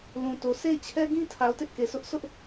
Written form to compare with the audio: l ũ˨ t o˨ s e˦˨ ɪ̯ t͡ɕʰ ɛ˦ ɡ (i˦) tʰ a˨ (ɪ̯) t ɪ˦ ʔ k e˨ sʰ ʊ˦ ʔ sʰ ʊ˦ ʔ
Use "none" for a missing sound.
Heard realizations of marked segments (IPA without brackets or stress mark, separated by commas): ĩ˦, ʊ̯